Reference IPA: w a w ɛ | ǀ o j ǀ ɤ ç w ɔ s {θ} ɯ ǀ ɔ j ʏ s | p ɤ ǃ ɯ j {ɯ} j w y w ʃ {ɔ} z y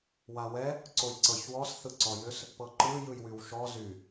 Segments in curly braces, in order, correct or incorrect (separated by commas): correct, correct, correct